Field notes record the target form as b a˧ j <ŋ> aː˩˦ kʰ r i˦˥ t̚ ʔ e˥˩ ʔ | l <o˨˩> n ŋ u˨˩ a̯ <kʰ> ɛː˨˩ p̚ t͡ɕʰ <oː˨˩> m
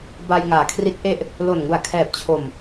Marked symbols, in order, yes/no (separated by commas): yes, yes, yes, no